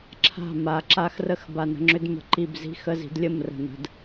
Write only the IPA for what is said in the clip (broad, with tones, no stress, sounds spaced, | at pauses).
ǁʰ a̤˦˨ m a˨ ǁ a˦ x r ə˦ x b a˨ n ə̤˨ ŋ͡ǁ ʏ˦ d m ə̤˨ ǃ i˦˨ b z i̤˦ x ə˦ z i̤˨˦ d lʲ ə˦˨ m r ə̤˨ n ə̤˨ d